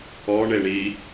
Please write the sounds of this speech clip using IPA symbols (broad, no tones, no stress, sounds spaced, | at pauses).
ɔ ɳ e ɳ i